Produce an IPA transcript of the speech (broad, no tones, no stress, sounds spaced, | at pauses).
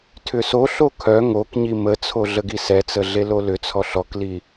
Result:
tʰ ʏ s o ɬ o kʰ œ ŋ o k ɲ i m ə t͡sʰ o ɮ ə ɡ i s ɛ t͡s ə ɮ e l o l ʏ t͡sʰ ɔ ɬ ɔ k l i